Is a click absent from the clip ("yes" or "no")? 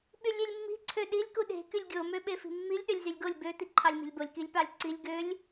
no